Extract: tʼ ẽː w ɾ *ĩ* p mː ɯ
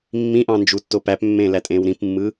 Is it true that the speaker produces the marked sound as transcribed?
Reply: yes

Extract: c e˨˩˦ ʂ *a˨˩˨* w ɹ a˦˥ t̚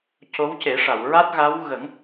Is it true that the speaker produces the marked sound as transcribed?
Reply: yes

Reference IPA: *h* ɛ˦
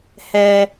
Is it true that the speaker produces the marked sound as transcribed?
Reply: yes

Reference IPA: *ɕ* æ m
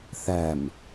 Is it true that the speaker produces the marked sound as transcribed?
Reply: no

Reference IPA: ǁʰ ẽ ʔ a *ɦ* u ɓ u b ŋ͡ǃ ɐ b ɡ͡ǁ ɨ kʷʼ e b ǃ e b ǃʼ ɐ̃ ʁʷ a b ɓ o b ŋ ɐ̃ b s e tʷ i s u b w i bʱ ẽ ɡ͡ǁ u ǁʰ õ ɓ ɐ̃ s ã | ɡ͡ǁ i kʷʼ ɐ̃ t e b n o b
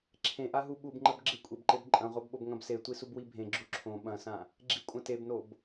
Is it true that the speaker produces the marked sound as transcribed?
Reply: yes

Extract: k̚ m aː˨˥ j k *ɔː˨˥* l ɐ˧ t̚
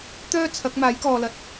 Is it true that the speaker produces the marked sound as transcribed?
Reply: no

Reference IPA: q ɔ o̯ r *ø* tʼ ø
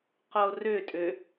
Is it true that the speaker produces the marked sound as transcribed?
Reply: yes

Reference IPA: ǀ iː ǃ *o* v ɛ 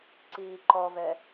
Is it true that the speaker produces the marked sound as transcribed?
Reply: no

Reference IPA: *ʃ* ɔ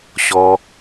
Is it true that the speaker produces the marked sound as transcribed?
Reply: no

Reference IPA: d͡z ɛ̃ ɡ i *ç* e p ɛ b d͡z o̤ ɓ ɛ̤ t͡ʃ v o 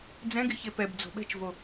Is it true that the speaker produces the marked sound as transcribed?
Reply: yes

